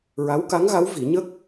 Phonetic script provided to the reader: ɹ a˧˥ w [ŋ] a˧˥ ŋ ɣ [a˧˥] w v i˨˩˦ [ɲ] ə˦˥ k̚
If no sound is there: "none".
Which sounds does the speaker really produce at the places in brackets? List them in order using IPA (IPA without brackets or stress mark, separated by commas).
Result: k, a˧˥, ɲ